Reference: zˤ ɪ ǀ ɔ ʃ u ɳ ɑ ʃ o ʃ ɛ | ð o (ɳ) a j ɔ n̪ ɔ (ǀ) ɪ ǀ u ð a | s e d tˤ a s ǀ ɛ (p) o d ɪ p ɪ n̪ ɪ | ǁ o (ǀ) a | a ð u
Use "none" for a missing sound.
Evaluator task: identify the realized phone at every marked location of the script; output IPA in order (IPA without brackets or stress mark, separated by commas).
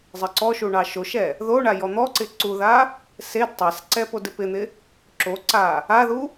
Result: ɳ, ǀ, p, ǀ